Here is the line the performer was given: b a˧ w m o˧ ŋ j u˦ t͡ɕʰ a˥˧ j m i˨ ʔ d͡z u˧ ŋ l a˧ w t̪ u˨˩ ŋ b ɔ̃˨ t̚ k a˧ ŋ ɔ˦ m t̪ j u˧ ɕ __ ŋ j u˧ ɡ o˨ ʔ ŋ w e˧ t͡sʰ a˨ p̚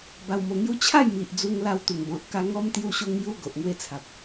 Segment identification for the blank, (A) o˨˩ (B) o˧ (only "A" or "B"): B